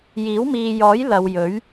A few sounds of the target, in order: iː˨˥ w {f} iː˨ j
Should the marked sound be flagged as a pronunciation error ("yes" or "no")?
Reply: yes